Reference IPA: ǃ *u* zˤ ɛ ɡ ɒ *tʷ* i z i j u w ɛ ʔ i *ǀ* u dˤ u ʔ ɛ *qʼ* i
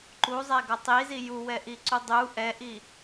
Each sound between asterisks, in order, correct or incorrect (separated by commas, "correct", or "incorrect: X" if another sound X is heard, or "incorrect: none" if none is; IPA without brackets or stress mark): correct, incorrect: tˤ, correct, incorrect: ʔ